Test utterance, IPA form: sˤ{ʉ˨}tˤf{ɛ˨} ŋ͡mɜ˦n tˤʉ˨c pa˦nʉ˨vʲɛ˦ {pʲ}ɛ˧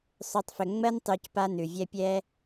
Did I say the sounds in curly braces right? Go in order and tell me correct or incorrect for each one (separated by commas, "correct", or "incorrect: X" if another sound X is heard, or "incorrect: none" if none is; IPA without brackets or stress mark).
correct, incorrect: ʏ˨, correct